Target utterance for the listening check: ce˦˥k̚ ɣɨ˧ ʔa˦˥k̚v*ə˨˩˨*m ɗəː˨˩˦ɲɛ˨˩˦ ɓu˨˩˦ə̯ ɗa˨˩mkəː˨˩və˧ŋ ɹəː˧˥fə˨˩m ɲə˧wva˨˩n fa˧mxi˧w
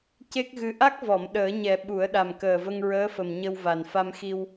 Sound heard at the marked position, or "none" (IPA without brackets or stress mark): ɔ˨˩˨